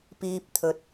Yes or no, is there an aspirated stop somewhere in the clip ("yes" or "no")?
yes